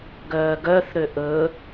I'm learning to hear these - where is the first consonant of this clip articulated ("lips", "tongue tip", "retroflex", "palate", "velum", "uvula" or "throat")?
velum